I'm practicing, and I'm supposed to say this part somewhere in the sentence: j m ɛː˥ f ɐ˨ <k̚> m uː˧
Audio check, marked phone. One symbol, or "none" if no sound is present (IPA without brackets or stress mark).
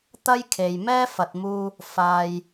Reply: t̚